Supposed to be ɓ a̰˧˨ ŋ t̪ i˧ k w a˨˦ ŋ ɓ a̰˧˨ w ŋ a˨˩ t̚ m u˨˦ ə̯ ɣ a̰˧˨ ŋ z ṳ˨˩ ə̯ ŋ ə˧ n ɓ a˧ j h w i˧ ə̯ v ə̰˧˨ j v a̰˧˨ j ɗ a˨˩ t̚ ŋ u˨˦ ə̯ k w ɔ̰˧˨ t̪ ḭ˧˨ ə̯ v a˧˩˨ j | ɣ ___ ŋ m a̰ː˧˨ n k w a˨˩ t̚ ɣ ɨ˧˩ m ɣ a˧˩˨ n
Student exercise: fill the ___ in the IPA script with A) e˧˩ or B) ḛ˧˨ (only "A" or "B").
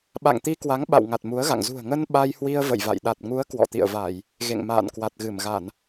B